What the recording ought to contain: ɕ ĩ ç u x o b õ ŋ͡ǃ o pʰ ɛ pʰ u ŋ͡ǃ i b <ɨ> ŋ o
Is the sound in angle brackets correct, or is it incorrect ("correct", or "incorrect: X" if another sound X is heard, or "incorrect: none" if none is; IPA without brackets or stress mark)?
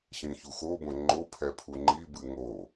correct